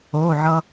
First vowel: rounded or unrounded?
rounded